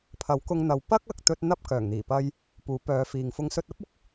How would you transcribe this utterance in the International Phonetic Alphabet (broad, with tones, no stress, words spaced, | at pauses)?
pʰɐ˨˥wkʊ˧ŋn̪ɐ˨w pɐ˥k̚ ɐ˨˥k̚t̪ɵ˥t̚ n̪ɐ˥p̚ kœː˨˩ŋn̪iː˨˩pɐ˧j | puː˨˥pœː˨˧fiː˨ŋ fʊ˨˧ŋsɵ˧t̚ɐ˥p̚ʊ˧k̚